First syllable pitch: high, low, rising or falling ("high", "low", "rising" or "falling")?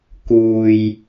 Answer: low